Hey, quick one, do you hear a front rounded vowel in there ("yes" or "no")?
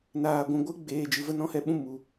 no